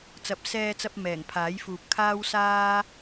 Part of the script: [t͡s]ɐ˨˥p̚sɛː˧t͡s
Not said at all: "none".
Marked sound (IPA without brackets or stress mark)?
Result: t͡s